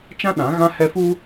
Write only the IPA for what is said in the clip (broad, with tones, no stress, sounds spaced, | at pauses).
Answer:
t͡ʃ ã˦ ɗ ã˨˦ ɣ ã˦ h ɛ˦ f u˦